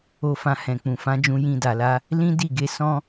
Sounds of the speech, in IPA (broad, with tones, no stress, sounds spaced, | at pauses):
o˧ f ã˧ h ɛ̃˨ k͡p ũ˨ f ã˨˦ d͡ʒ ũ˧ j ĩ˧ d a˨ l a˧ | l ĩ˦ d i˦˨ ɡ e˧ s ɔ̃˦